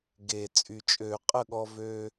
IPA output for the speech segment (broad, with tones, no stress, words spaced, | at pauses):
ɡe˨˩ t͡sʼy˨˩t͡ʃʼø˧˩˧qʼə˥˩ɠɔ˧ vøː˧